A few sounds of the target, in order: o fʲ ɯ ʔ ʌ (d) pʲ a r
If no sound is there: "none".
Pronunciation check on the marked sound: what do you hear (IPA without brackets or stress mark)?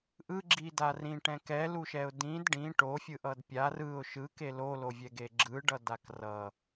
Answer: d